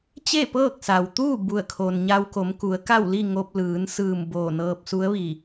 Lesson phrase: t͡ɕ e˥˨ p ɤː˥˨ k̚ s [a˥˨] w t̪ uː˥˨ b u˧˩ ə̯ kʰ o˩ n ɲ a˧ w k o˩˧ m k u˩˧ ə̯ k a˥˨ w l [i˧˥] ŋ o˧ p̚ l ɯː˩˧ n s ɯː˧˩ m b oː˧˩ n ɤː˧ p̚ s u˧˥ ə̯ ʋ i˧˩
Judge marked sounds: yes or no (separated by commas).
no, no